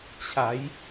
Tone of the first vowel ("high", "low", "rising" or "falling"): rising